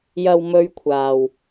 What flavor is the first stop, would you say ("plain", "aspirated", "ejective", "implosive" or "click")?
aspirated